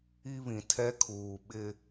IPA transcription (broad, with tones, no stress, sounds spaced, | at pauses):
i˦ β ĩ˨ tʰ ɛ˦ kʰ uː˨ ɓ ɪ˦